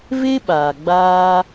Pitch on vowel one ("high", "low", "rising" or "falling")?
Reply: high